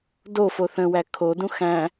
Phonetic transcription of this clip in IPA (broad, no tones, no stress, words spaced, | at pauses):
dofo θə̃wæ kʰodũ xæ̃